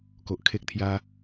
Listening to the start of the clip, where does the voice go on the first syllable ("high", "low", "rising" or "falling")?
low